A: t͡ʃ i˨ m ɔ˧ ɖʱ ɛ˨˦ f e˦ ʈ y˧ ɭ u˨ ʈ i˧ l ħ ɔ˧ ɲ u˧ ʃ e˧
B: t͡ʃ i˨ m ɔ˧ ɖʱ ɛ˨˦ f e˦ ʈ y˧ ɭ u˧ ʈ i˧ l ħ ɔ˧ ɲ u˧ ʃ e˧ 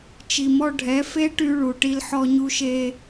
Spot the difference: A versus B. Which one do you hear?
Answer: A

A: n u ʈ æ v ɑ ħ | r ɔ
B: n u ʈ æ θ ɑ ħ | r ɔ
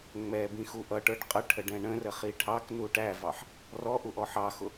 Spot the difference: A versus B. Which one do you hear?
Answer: A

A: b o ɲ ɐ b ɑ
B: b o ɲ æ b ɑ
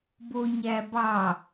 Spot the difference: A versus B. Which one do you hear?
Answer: B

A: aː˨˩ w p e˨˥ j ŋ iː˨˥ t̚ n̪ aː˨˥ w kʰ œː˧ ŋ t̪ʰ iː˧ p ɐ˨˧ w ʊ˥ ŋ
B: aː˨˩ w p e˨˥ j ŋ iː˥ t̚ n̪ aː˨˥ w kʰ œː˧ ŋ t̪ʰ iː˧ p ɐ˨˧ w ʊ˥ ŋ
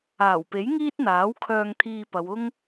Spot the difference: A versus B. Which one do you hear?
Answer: B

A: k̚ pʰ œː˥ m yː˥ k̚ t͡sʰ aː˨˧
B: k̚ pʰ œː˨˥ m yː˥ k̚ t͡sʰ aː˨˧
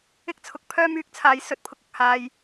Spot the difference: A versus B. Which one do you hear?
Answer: A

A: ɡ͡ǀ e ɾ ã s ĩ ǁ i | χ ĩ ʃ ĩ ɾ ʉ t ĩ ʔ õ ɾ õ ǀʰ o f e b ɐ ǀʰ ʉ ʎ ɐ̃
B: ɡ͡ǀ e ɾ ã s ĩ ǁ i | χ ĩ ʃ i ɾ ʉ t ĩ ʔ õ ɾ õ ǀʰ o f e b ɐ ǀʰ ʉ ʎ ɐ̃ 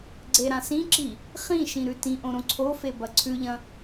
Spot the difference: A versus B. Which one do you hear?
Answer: A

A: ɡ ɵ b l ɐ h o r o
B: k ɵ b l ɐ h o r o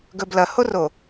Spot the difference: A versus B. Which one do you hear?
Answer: A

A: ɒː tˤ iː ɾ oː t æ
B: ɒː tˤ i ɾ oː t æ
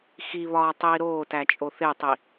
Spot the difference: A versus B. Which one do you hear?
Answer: A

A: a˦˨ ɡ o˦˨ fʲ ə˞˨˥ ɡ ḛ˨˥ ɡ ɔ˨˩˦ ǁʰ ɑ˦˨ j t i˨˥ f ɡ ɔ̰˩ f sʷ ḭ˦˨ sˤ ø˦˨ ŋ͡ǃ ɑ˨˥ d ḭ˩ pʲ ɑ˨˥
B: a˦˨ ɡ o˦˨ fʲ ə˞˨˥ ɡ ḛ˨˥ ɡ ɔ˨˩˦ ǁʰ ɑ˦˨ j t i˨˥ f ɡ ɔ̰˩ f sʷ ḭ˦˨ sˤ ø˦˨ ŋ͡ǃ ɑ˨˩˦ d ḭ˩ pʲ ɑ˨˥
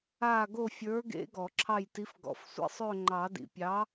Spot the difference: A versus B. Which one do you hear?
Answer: B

